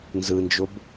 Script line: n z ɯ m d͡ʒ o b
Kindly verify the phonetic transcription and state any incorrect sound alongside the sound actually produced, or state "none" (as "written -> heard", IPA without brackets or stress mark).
m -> n